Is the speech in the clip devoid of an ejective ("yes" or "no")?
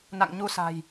yes